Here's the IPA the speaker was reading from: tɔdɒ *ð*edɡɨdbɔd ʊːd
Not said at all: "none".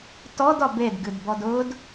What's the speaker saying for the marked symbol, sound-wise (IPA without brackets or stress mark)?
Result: b